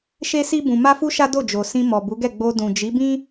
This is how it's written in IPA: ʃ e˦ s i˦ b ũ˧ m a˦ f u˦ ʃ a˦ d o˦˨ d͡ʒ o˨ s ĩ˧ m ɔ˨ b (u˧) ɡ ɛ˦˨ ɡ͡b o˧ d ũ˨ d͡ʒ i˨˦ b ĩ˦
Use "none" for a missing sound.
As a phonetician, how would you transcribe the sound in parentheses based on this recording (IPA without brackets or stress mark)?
u˨˦